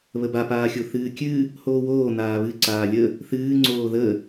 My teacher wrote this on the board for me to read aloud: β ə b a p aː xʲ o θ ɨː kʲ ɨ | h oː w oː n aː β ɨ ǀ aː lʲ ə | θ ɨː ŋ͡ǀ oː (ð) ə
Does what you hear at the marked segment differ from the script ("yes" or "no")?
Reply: no